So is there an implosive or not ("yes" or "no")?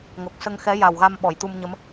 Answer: yes